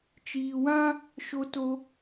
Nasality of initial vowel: oral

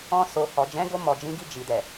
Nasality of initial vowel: nasal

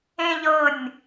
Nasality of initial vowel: nasal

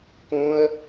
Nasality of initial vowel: nasal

